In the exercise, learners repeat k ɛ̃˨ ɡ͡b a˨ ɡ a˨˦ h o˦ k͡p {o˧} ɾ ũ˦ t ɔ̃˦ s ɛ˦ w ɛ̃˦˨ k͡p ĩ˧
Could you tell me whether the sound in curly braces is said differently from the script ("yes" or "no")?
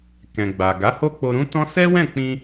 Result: no